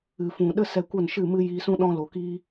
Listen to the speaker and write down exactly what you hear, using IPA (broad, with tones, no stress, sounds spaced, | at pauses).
ɨ˨ f ũ˨ ɗ ə˦ s ɛ˧ kʷ ə˦˨ n ʃ ɨ˦˨ m ɨ˦ j iː˧ s ũ˦ ɗ ɔ̃˦ l o˨ k iː˧